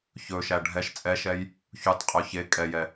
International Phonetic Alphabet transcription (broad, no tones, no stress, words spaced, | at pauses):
çɵʃæ ɖʱɛʃ t͡sʼɛʃɛj | çutˤqʼɵ çe kʼɛjɛ